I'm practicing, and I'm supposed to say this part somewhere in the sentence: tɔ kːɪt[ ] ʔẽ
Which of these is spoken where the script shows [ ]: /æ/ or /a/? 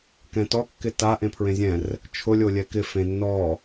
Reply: a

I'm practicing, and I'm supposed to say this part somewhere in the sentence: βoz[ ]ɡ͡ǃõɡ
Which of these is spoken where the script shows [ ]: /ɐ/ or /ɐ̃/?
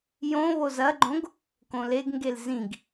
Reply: ɐ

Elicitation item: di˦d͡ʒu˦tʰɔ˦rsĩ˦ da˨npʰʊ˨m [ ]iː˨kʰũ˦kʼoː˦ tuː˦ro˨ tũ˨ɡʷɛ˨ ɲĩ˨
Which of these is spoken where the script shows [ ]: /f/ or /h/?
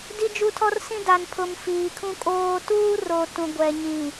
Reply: f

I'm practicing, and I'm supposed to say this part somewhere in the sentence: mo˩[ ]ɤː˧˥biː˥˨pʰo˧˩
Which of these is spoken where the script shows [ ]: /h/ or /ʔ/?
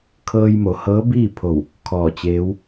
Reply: h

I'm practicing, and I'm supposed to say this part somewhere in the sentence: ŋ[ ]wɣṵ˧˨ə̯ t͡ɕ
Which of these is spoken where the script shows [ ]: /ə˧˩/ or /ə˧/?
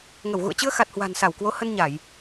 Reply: ə˧˩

